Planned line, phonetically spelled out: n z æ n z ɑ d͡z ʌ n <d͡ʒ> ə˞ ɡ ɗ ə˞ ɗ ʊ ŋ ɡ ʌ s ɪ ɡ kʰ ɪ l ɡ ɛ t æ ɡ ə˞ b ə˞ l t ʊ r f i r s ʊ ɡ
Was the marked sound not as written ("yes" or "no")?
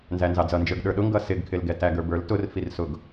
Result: no